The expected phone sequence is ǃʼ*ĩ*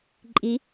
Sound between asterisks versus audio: incorrect: i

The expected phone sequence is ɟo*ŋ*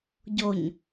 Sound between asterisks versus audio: incorrect: ɲ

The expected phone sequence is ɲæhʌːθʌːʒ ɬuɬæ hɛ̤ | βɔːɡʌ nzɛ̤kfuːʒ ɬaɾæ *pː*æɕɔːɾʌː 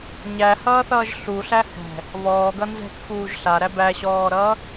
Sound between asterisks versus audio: incorrect: b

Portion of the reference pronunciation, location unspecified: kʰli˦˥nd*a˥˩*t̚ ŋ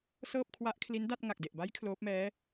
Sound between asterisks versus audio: correct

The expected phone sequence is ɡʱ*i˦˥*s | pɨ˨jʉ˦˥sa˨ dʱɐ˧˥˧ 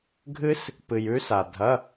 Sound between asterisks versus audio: incorrect: ɨ˦˥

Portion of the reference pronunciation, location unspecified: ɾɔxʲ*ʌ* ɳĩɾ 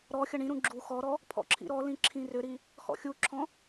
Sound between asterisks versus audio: correct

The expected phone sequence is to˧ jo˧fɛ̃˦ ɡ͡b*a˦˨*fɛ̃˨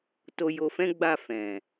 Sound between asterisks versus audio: correct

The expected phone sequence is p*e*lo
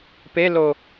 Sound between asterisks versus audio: correct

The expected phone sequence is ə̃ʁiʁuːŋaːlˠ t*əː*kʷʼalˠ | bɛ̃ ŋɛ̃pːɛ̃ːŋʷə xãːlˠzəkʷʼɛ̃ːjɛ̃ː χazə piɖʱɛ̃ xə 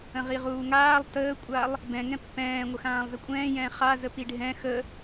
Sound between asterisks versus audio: correct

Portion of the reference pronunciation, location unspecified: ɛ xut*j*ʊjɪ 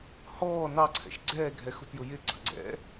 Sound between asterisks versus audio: correct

